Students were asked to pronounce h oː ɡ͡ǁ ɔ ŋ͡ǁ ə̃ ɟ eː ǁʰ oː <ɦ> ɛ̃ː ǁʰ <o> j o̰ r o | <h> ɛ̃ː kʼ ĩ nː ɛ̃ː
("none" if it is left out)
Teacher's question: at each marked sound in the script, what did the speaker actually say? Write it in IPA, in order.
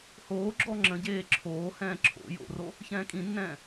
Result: h, o̰, ç

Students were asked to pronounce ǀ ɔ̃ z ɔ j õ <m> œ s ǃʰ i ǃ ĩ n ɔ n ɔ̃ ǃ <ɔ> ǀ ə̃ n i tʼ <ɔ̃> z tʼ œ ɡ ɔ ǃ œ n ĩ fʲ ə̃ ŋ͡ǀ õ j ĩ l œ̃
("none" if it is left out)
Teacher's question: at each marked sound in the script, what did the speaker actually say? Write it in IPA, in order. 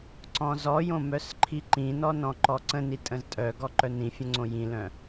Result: m, ɔ, ə̃

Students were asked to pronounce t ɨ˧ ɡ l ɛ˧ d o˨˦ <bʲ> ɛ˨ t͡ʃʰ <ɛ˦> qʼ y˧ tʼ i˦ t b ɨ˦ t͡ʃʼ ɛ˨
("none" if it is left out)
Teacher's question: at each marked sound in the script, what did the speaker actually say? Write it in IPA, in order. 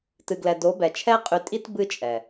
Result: b, ɛ˦

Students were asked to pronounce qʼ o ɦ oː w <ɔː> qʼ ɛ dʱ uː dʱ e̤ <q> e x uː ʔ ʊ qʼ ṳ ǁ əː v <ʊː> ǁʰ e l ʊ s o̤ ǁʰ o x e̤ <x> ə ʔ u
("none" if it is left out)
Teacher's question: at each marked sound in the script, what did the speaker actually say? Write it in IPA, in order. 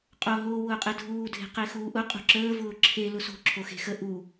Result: ʊː, q, ʊː, x

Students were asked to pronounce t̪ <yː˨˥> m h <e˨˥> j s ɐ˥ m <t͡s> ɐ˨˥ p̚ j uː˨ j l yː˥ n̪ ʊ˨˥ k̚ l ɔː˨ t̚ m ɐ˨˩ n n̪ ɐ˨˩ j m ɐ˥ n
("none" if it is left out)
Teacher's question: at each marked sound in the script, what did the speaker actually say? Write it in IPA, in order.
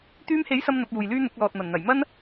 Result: yː˧, e˨˥, n̪

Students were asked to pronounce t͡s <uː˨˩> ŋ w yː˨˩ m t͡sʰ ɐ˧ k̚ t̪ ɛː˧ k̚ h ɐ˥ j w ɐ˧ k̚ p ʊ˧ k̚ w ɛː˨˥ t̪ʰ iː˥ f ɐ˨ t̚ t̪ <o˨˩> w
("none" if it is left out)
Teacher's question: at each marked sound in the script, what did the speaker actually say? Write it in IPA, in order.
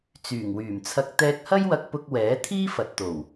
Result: yː˨˩, o˨˩

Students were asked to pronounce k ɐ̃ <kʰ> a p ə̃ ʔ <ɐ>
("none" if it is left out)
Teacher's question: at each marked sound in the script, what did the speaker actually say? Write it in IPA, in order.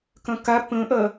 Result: k, ɐ

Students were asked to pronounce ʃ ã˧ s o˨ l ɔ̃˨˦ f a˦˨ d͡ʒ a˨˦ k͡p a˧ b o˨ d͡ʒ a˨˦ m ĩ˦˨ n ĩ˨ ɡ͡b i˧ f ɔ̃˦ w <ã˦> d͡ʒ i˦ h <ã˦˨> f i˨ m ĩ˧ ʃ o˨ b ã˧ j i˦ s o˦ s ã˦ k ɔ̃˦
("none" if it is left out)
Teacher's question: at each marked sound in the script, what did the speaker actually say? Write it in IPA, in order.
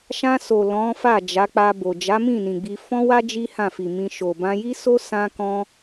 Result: a˦, ã˦˨

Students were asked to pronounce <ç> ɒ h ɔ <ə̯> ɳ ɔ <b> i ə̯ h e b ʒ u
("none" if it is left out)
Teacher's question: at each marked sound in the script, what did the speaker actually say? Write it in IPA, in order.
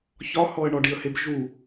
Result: ç, ə̯, ɖ

